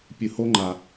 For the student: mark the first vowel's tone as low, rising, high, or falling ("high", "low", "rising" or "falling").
low